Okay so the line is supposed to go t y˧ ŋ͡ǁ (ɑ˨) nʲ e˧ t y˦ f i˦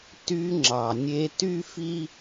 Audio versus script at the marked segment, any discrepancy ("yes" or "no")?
no